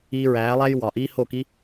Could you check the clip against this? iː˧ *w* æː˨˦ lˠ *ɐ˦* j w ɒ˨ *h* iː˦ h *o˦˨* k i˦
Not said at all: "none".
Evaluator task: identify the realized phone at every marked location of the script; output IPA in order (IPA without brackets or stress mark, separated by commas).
ɹ, æ˦, ʔ, o˦˨